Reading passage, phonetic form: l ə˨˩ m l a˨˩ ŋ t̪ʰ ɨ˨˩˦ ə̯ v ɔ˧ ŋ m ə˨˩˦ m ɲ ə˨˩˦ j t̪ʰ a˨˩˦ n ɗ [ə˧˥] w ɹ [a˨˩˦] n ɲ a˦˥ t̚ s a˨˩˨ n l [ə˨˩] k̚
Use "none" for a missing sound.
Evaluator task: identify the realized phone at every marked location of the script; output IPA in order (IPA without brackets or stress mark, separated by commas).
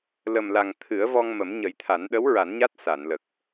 ə˧˥, a˨˩˦, ə˨˩